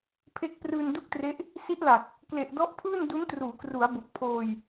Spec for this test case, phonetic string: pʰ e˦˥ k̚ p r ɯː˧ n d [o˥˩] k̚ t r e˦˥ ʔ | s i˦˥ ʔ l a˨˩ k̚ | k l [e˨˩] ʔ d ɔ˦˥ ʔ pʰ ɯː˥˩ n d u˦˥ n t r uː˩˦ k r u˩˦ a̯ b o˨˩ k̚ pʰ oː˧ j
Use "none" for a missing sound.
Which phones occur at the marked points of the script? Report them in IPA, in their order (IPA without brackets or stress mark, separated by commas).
u˥˩, e˨˩